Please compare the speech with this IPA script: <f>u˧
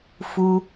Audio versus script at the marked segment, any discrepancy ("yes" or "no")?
no